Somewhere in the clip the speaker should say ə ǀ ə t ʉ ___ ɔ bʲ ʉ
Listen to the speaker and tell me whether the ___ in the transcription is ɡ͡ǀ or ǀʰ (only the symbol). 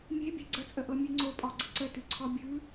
ǀʰ